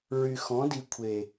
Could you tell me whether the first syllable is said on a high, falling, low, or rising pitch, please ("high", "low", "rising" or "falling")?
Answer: low